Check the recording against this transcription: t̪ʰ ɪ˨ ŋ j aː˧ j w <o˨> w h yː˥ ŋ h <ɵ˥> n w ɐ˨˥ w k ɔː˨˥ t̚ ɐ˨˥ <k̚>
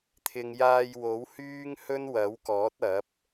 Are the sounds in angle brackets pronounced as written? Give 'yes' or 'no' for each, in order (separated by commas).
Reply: no, yes, no